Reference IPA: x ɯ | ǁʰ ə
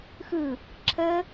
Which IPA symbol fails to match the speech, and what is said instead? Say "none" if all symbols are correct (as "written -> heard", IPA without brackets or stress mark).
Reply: none